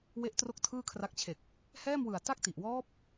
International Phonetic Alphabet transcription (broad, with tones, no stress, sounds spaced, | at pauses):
w e˦˥ ʔ t r o˥˩ k̚ tʰ ɯː˥˩ kʰ r a˦˥ k̚ t͡ɕʰ e˨˩ k̚ | h ɛː˥˩ m w ɯ˨˩ a̯ t a˥˩ k̚ t i˨˩ ʔ w ɔː˦˥ p̚